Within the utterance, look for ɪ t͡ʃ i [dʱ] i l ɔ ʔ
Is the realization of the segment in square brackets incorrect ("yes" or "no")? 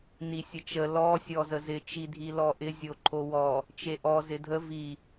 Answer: no